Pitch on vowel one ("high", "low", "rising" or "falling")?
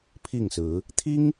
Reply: falling